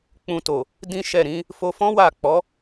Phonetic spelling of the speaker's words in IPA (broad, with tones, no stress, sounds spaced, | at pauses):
k͡p ũ˧ t o˨ | d ĩ˦ ʃ ɛ˦˨ ɾ ĩ˨˦ | f o˧ f ɔ̃˦ w a˦˨ k͡p ɔ˨˦